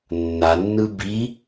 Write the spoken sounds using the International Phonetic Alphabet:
nː a nː ɯ b i

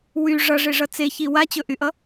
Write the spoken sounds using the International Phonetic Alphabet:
w y ʐ ʌ ʐ e ʐ ʌ t͡s e ç i w a t͡ɕ ɵ ʔ y ʔ ʌ

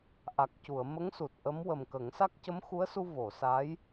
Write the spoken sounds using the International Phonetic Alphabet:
ʔ a˨˩ k̚ c u˨˩˨ ə̯ m ə˧˥ ŋ s u˨˩ t̚ ʔ ə˧˥ m w ə˨˩ m k ə˨˩˦ ŋ s a˦˥ k̚ c ə˧˥ m x u˧˥ ə̯ s u˧ v o˨˩˨ s a˧˥ j

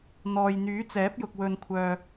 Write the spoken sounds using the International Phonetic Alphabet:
n̪ ɔː˨ j n̪ yː˨˥ t͡s ɛː˨˥ p̚ j ʊ˨ k̚ w ɵ˨ n kʷʰ œː˨

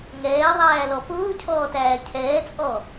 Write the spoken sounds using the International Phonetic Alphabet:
ŋ ɛː ðˤ æː l ɔ p ʊː cʰ ɔː t æː cʰ ɛː t͡sʼ ɔ

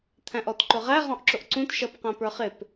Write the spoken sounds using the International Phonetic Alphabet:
t̪ʰ æ̃ ʔ ɔ t ǃ ʊ ʁ æ ʁ ɔ̃ ʔ ǁ ʊ ʔ ǀ ũ t ʃ ʌ p q æ̃ p ə˞ χ ɪ p

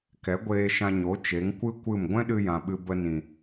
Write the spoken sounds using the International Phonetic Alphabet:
k ɛ˨˦ ɡʷ eː˧ ʃ ã˧ ɲ o˨˦ t͡ʃ e˨˦ ŋ kʷ ɨ˦ kʷ ɨ˦˨ m ɡʷ ɛ̃˦ ɗ ɨ˧ j ã˨ ɓ ɨ˧ b ə˧ n ĩ˨

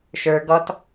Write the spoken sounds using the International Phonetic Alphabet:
ʃ ə˞ ɡ ɔ t

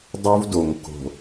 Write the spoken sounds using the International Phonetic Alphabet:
dˤ u˦ v d o˨ ŋ k o̤˨

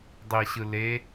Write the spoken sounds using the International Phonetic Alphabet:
dˤ i ɕ ɯ l e

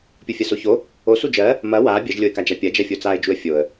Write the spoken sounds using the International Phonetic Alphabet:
pʲ o fʲ ɐ s o ç o | o s u d͡ʒ ɜ | m ɐ w a bʲ ɐ ʒ lʲ o ɪ̯ k a d͡ʒ a pʲ ɐ d͡ʒ ɐ fʲ o t͡s a ɪ̯ d͡ʒ u ə̯ fʲ o ə̯

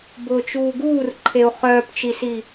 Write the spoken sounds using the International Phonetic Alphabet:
b ʊː t͡ʃ uː ɡ uː r ǃʰ e u̯ χ œː p t͡ʃ i s i

